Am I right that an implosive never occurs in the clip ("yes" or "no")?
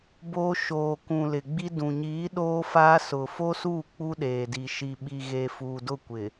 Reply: no